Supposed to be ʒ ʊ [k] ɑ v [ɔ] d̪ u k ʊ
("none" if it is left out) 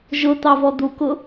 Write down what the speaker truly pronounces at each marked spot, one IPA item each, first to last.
t̪, ɔ

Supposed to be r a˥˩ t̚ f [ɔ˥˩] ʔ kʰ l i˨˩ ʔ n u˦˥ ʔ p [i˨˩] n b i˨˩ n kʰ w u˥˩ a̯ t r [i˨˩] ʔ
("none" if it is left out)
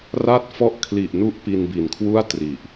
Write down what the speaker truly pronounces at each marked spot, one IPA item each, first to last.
ɔ˥˩, i˧, i˨˩

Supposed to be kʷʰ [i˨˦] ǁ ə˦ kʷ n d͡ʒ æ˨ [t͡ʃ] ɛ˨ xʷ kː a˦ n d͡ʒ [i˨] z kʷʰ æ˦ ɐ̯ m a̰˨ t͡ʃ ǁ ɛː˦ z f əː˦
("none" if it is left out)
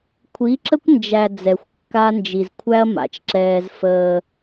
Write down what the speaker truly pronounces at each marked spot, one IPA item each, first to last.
i˨˦, d͡z, i˨

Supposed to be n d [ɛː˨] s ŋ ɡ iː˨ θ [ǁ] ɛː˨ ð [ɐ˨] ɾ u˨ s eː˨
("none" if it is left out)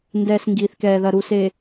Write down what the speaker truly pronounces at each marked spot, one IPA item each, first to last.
ɛː˨, k, ɐ˨

